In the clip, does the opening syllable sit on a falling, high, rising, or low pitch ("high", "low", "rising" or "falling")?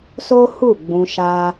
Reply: high